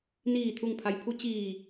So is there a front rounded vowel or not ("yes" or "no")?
no